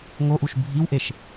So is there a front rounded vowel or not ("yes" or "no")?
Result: no